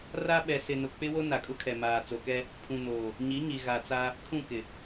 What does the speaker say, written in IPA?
ra˦ɓɛ˨ sɪ˨nʊ˨ k͡pɪ˦wo˦ na˨kʼʊ˦kʰɛ˨maː˨ t͡so˨kɛ˦ | pʰũ˨noː˨ | ɲi˨˦ɲi˨ɣa˨t͡sa˦ | kʰũ˦˨kɪ˨

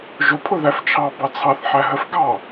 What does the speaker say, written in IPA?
ʒʊ pʰʊðæft͡ʃʰɑ bɑt͡sʰɑθ ħæɦəf ɡɑ

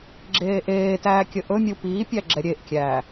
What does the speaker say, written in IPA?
ɡ͡ǁeːʔeːtæː kʲəʔɵmʲu piːpʲæ ɡ͡ǁɛɾʲeʔkʲæː

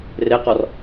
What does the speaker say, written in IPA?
reqɔr

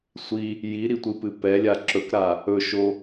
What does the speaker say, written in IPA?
sʷi | jiɾitʷɨpɨ pɛlʲa ǁɵkɾa | ɵʃo

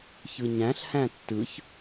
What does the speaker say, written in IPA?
çɯɲæ̃ɬhæ̃ tːɯç

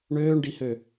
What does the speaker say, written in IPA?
ɳøːɳɖihø

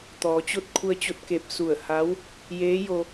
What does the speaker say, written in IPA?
t̪ɔː˩˧t͡ɕo˥˨t̚ kʰu˧ə̯t͡ɕo˧t̚ke˧˩p̚ su˧˩ə̯ha˧˥w | jeː˧˥jo˧

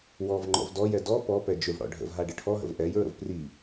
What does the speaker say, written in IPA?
wɔvŋ͡ǃɔ̰v dɔjɛ dɔ pɔpɛ d͡ʒʏvɽɔ̰ ɖʱə̰vɦa ɖəʈʰɔɦə̰v ʔɛjɹə̰v pri

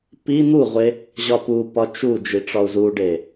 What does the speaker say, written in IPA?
pi n̪uʁʷe | ʑɒpupɒ t͡ʃu d͡ʒiʈ͡ʂɒu̯zuɖe

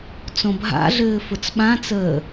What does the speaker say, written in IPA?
t͡sõbʱa̰ɮɘː fʊt͡sɓãt͡səː

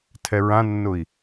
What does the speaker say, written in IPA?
tʰɛɹãnːʊi̯

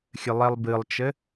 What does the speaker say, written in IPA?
xʲɘlˠɛlˠbɨlˠt͡ʃɘ

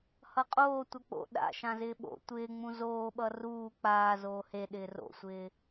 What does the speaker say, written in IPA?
hʌqʼoː tʷʌk͡po̰ ɗa̰ ʃãzɪːɓo̰ tʷɪːŋ͡mũ zoːɓʌ ruː k͡paː zoːhe ɗɪːro̰sʷɪː

